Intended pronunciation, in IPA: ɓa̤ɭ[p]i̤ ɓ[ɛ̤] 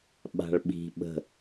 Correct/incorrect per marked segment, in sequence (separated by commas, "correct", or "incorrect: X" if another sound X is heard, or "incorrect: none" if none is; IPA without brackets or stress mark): incorrect: ɓ, incorrect: ə̤